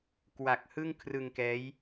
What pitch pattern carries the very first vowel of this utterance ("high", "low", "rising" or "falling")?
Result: low